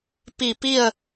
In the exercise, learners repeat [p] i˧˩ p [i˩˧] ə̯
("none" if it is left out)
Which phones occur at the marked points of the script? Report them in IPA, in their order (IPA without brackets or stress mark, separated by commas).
p, i˥˨